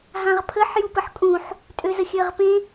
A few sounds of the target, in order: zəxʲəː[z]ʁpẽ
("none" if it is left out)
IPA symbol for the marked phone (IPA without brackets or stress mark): none